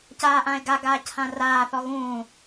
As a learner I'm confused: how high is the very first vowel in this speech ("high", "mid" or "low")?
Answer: low